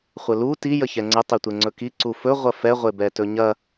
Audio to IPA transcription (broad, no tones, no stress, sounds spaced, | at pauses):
χʷ ə l u t i j ə ç ɛ ŋ͡ǀ ə tˤ e tʷ e ŋ͡ǀ ɵ k i ǀ u f ɵ ʁʷ ɐ f ɛ ʁʷ e b ɛ t ɵ ɲ ɐ